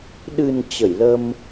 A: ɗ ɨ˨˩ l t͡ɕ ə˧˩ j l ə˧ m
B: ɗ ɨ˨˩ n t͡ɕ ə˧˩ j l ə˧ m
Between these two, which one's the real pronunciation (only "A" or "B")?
B